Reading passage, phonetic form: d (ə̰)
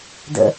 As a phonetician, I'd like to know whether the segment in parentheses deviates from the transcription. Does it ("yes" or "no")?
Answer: no